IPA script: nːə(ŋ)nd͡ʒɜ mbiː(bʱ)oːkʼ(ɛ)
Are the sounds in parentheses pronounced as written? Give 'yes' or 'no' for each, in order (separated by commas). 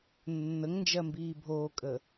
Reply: yes, yes, no